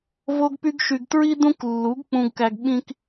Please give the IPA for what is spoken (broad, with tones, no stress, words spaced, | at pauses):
vo˧ɡpy˧ɡʃy˨ɡ tɹi˦dũ˦klːu˨˦ɡ k͡pũ˧ɡkæ˧ɡɓĩ˦k